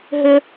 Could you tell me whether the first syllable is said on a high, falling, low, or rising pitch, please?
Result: high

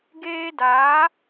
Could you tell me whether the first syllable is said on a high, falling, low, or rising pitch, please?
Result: high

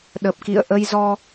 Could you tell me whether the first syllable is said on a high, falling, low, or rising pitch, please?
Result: low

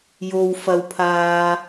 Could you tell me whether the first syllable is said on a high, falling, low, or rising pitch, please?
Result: low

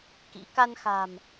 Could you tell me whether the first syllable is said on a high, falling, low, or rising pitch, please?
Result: rising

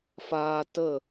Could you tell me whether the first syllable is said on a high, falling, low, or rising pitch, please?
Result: high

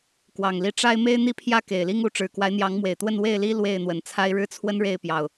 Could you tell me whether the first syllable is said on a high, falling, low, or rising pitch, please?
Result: low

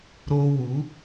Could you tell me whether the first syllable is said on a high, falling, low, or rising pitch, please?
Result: high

